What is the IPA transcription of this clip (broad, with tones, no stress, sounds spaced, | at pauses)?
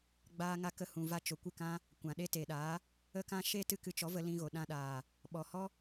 ɡ͡b aː˧ ŋ a˧ k ə˧ h ũ˨ v a˧ t͡ʃ o˨ kʷ ɨ˦˨ k ã˦ | kʷ ã˨ ɗ e˦ t e˨ ɗ aː˨˦ | ə˦ k ã˦ ʃ e˦ t ɨ˦ k ɨ˧ t͡ʃ ɔ˨˦ v ə˧ l ĩ˧ ɣ o˨ ɗ ã˧ ɗ aː˨ | ɓ ɔ˨ h ɔ˦